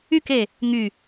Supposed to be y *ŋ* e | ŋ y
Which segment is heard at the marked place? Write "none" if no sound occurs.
k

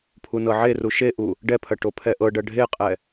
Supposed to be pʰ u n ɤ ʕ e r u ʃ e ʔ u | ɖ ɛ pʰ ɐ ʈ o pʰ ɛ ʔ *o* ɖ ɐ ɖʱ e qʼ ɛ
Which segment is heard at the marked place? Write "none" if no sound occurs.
ɤ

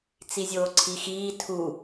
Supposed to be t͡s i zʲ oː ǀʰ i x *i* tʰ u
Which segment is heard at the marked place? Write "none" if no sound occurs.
iː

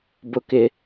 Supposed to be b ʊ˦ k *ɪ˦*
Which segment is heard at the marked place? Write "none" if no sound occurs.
ɪ˦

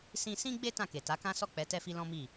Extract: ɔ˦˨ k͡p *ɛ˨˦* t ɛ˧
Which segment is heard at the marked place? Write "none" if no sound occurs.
ɛ˨˦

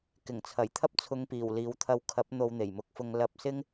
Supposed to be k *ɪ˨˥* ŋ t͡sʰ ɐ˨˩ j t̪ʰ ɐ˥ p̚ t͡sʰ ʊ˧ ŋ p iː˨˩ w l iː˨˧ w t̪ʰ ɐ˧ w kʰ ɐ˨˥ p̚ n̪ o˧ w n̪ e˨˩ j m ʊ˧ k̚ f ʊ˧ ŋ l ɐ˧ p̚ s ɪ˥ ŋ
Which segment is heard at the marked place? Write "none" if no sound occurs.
ɪ˨˩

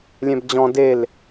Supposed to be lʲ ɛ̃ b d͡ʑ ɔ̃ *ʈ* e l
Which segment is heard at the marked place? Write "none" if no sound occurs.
d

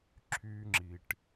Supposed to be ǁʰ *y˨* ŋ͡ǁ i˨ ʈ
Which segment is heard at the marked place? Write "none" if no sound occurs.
y˦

